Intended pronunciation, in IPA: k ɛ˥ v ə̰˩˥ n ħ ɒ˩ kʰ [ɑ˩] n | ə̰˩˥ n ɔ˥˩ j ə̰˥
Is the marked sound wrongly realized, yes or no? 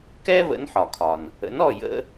yes